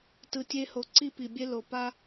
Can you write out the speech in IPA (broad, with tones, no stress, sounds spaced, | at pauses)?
t ɯ˨ tʲ e˧ h o˨ ǀ i˦ p i˨ bʲ e˦ l o˨ p a˦